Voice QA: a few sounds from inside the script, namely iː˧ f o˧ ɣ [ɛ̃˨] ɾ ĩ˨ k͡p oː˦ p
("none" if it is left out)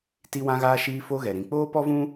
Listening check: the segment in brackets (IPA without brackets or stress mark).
ɛ˨